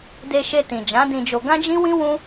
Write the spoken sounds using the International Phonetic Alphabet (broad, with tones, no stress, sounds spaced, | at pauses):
d e˧ ʃ e˧ t ĩ˨ d͡ʒ ã˨˦ d ĩ˧ d͡ʒ o˧ ɡ ã˦ d͡ʒ ĩ˦ w ĩ˦ w ũ˦